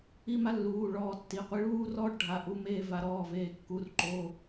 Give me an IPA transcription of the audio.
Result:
i˥˧ m a˦˥ lː uː˩˧˩ ɭ ɔː˧ tː i˩˧˩ qʷ i˧ ɭ uː˥˧ r ɔː˥˧ ʈ ɖʱ a˩˧˩ ʔ u˩˧˩ m eː˧ v a˩˧˩ ɾ ɔː˩˧˩ v eː˩˧˩ kː u˩˧˩ r ǃ o˩˧˩

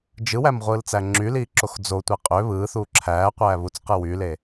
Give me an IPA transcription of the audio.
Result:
d͡ʒ ɯ w æ m ʁʷ ɯː l t͡s æ ŋ͡ǁ y l iː ǁ o x d͡z o tʷ e qʼ ø β ɯː θ uː ǁʰ æː qʷ æː β u t͡s q ɯ w y l e

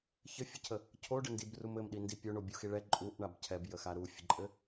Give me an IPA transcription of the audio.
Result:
ç ɘ fʲ ɘ cʰ ə | cʰ o ɖ ə n d i b r u m ɘ m ɗ i n d i pʲ o ɳ o bʲ u x i ɭ ɛ ǃʼ u ʔ ɳ a b cʰ ɛ b j ə x a ɾ u fʲ ə ǃʼ ɘ

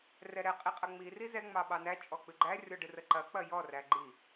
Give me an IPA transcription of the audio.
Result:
r ɛ ɾ ɛ qʼ i qʼ ɐ ŋ͡m i r i z ɛ ŋ͡m ɑ ɓ ɑ n æ t͡ʃʼ ɔ k͡p ɨ ɡ͡ǃ æ rʲ ɔ ɖ ɨ r ə ǃ ɐ k͡p ɐ j ɔ r æ ɡ͡ǃ i

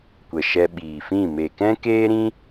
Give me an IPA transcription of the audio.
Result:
kʷ ə˨ ʃ ɛ˧ ɓ iː˨ f ĩ˦˨ m e˨ k ɛ̃˦ k eː˦ ɾ ĩ˦

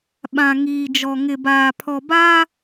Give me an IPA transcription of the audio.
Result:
ɓ ã˨ ŋ iː˨ d͡ʒ ɔ˨ ŋ ɪ˨ b aː˨ pʰ ɔ˨ b aː˦

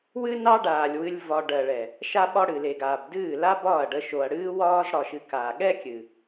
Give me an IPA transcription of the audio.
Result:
w ɨ˦ n ɑ˦ ɖ aː˨ lʲ w ɨ˦ lʲ v ɒ˧ ɖ ɜ˨ ɭ ɛ˨ | ʃ a˧ ɓ ɒ˧ ɽ ɨ˨ l e˨ ɡ aː˨ b d ɨː˦˨ l a˦ b ɒː˦˨ ɐ̯ ɖ ə˧ ʃ o˨ ɐ̯ ɽ ɨː˦ w ɒː˦ z ɽ ɒ˨ ʃ ɨ˨ k a˨ ɠ ɛ˦ kʲ ɨ˨

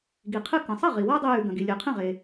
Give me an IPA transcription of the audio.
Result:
ɡ i˩ qʰ ɨ˧ k ɐ̃˩ sˤ ɐ˥˩ ʁ i˩ w a˥ dˤ e˧ j ʉ˩ ɡ ɐ̃˩ ɡ i˩ lʲ ɨ˩ qʰ ẽ˥˩ ʁ e˩

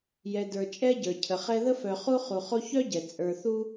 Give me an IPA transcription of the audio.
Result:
j ɛ˨ d ə˞˨ t͡ʃʼ ɛ˥ ɟ ə˞˩ cʰ ə˩ χ ɛ˦ ð ə˥ f œ˨ χ u˥ χ u˨ χ o˦ ç œ˥ ɟ ɛ˩ t͡sʼ ə˞˨ θ u˥

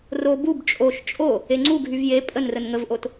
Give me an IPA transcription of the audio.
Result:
r o b u b t͡ʃʼ o ʃ t͡ʃʼ o | e ŋ͡ǀ u ɡʱ y v j e pʼ ə n r ə n ŋ ə v ʔ o t

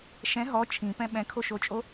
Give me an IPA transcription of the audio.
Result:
ʃ ɛ̃ ɦ ɔ t͡ʃʰ ĩ p ɛ̃ ɓ ɛ̃ kʰ o ʃ o t͡ʃʼ o

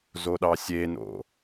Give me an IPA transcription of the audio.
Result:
z o ɗ ɑ sʲ e n o̰

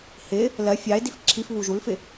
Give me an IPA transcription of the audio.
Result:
h ɪ | l ɜ fʲ ɑ e̯ d i f ǁʰ i f β u ʒ u l f ɪ

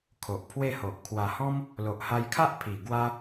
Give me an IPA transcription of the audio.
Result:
kʰ o˨ ʔ pʰ w e˥˧ h o˨ ʔ kʰ w a˨˩ h ɔ̃˦ m | l o˨ ʔ h a˧ j kʰ a˦ ʔ pʰ i˨˩ ɡ w a˦

